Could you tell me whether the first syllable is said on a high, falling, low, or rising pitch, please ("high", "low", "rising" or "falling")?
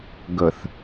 low